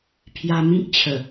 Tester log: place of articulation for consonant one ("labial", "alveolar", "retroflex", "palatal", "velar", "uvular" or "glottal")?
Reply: labial